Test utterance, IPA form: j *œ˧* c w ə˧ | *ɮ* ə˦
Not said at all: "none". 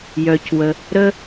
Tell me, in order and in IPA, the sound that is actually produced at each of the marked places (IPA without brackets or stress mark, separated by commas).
œ˧, ɾ